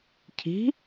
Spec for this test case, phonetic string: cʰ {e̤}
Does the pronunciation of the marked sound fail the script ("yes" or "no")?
yes